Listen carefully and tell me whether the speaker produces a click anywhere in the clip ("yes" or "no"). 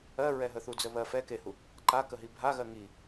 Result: yes